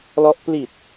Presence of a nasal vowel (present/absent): absent